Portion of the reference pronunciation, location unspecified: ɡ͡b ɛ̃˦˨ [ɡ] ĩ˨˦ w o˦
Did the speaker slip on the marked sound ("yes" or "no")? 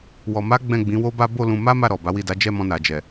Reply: yes